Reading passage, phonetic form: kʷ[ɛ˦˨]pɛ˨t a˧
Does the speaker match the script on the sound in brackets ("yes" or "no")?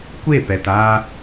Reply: no